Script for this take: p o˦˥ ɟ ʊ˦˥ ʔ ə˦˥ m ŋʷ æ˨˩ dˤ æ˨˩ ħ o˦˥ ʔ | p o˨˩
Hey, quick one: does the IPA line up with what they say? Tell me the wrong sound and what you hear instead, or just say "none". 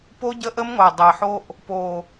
ʊ˦˥ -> ə˦˥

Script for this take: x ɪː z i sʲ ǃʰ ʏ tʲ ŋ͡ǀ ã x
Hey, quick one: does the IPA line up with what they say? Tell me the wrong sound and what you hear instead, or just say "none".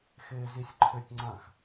none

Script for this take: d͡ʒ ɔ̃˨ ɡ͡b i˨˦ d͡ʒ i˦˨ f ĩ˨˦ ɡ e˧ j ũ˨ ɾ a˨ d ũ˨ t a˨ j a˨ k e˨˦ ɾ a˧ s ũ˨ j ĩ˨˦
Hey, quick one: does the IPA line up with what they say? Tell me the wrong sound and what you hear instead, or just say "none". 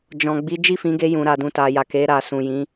none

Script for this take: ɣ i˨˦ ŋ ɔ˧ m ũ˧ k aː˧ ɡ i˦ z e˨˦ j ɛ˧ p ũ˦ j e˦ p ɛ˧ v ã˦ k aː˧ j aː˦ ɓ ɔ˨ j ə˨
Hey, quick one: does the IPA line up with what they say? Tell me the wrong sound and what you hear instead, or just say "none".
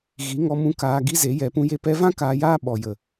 none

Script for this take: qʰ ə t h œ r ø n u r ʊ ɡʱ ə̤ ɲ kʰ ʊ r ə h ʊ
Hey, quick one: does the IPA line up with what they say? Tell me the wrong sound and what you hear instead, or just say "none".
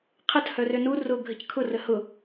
ɲ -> c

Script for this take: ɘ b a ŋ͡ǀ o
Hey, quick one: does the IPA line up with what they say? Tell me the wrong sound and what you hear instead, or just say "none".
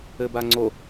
none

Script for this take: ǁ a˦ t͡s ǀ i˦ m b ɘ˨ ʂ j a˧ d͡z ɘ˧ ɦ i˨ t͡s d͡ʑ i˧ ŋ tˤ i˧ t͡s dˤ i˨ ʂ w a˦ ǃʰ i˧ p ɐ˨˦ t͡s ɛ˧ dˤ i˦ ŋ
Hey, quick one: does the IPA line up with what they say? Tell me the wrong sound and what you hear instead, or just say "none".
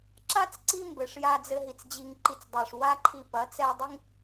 tˤ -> ǃ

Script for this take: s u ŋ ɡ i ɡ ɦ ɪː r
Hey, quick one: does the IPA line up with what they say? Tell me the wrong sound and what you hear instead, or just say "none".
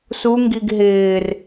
none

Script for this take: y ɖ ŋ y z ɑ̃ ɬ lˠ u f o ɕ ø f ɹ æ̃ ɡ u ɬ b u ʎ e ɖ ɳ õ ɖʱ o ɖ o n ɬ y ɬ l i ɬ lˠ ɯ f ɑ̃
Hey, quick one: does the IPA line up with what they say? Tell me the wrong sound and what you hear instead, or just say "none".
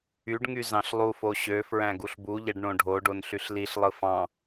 none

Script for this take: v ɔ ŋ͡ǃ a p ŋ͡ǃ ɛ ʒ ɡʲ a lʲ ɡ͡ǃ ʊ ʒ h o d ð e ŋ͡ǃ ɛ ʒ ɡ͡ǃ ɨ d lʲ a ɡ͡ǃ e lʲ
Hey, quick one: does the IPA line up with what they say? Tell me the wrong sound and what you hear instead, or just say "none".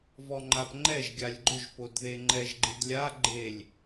h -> p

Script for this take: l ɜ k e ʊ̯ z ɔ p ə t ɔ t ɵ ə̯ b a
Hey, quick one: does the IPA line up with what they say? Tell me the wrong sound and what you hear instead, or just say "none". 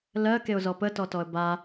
ɵ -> ɔ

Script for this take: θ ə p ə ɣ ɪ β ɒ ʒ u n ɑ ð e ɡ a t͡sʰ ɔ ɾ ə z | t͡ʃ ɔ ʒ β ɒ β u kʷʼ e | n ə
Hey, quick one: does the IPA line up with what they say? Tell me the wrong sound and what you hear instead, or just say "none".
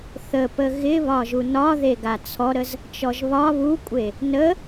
ɑ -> ɒ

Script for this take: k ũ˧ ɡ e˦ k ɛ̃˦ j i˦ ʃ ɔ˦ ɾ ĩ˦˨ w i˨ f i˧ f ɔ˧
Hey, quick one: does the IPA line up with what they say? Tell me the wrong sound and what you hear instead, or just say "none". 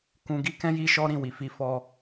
e˦ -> i˦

